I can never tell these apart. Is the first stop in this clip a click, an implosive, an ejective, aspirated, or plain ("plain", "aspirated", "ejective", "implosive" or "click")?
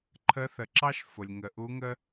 click